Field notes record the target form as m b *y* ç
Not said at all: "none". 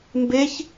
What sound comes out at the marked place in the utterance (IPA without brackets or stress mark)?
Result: e